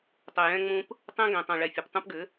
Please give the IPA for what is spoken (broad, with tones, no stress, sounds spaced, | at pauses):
tˤ ɵ˨ j ɛ̃˧ ŋ͡m ũ˧ p | tˤ ɛ̃˦ ɡ ɛ̃˨ tˤ õ˨ ɭ ɛ˨ fʲ ɘ˨ p tˤ ũ˧ p ɡ ɘ˨˦